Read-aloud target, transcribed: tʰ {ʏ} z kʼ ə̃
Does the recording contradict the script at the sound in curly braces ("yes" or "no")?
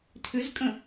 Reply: no